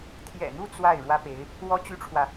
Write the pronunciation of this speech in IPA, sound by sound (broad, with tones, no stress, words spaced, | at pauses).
t̪ʰjɛ̰˨˩n̪u˥˧ t͡swa˥˩ɪ̯ ɻwä˥pe˧˥ɪ̯ | wɔ˥t͡ɕy˥ʈ͡ʂʰwä˨